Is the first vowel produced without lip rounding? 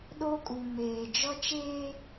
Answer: no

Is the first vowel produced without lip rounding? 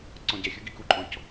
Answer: no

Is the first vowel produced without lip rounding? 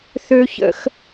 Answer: no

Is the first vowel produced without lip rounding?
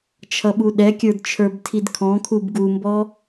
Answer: yes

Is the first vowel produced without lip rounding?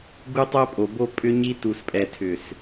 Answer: no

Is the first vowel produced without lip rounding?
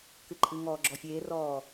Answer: yes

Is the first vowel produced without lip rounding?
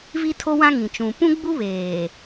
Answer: yes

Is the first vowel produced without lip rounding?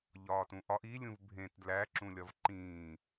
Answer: no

